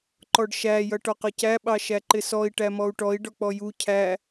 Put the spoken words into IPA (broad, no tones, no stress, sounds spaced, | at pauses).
ǃ ɔ ɖ ʃ æ j ʌ ʈ ɔ q ʌ c æ ɓ ɑ ʃ æ ǃ ɪ s ɔ i̯ ʈ æ m ɔ u̯ ʈ ɔ i̯ ɖ ɔ k͡p ɔ j u cʰ æ